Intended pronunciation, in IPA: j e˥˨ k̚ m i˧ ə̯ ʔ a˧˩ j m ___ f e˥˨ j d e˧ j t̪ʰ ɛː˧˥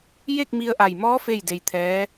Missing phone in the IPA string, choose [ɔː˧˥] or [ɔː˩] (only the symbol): ɔː˧˥